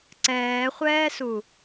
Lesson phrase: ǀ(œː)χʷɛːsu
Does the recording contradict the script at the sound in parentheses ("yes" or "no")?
yes